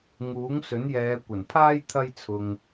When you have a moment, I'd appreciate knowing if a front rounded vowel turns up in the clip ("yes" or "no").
no